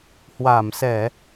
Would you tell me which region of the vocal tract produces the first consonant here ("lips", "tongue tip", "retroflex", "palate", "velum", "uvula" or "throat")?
throat